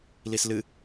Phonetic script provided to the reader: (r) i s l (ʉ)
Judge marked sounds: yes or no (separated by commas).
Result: no, no